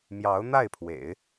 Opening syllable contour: rising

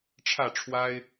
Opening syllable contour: falling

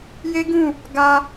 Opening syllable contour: high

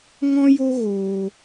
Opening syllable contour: high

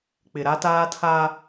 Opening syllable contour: low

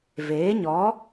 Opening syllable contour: rising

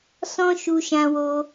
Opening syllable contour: high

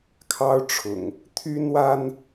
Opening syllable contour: high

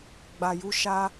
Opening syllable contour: low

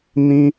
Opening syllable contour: high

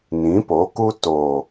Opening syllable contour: rising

